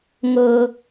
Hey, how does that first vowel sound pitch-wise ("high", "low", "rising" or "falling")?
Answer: high